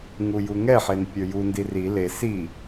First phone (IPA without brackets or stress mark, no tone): ŋ